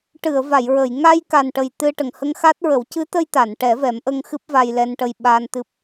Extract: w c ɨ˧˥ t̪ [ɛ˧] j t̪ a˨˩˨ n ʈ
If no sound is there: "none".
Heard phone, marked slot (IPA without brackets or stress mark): ə˧